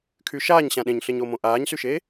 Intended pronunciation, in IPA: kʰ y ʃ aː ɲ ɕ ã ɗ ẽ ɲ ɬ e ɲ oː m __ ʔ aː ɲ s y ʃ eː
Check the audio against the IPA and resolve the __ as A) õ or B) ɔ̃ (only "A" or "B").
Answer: A